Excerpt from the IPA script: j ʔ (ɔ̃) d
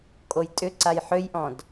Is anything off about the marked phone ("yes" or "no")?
no